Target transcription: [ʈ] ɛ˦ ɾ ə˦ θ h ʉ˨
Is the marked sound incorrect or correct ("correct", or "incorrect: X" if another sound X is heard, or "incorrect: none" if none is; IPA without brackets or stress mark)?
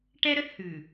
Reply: correct